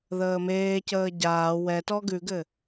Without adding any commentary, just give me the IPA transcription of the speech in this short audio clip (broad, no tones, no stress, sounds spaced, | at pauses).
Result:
ð əː m eː c əː ɟ aː w ɛ t ɔ ɡ ʉ ɡ ɘ